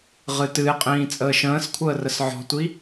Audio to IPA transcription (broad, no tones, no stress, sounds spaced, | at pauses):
ʁ ɨ t ɨ e̯ qʼ ĩː t͡sʼ əː ʃ ə̃ː s kʷʰ əː r ə s ʕ ɔ̤ tʷ i